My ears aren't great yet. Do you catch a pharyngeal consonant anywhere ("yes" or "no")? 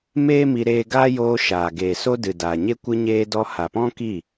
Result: no